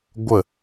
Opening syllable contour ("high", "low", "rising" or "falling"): falling